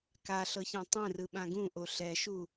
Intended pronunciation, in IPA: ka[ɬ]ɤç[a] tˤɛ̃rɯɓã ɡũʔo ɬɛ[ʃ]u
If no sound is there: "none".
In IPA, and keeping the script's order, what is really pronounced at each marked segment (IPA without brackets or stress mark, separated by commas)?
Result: ɬ, ã, ʃ